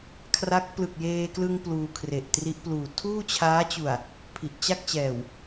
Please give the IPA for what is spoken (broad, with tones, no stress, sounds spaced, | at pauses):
kʰ r a˦˥ k̚ p l ɯ˨˩ k̚ j eː˧ k l ɯ˧ ŋ p l uː˧ kʰ r e˨˩ ʔ t r i˦˥ ʔ p l uː˨˩ tʰ uː˥˩ t͡ɕʰ aː˦˥ t͡ɕ u˨˩ a̯ | pʰ i˨˩ ʔ t͡ɕ a˥˩ k̚ t͡ɕ ɛː˨˩ w